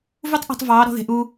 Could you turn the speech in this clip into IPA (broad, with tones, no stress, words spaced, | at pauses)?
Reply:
vu˥tˤʔṳ˧tˤ vɑː˧˥ ɾɔ̤˥ðe̤˧˥ʔuː˥